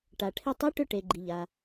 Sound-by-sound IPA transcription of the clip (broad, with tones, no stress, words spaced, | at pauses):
ʈa˩ʈʰɪ˧tˤi˧˥ ʈʏ˧ ʈe˩ɡ͡ǃi˩ʎa˩